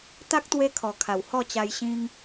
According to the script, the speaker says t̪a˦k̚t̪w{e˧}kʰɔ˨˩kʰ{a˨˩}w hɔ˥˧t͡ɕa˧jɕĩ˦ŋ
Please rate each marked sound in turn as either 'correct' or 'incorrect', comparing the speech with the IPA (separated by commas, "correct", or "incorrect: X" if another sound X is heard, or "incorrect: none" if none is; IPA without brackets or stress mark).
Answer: correct, correct